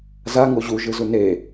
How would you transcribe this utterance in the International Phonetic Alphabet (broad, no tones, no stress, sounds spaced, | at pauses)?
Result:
z a ŋ o ʑ u ʒ ɯ z u n e